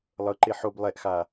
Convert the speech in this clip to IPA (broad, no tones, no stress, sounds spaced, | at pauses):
lˠ ɤ ǃ e ħ o b lˠ ɛ ʔ x a